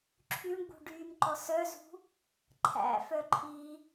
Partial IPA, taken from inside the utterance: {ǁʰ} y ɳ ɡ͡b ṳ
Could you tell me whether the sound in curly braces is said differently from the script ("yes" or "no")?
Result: no